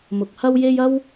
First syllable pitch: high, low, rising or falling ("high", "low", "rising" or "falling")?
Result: low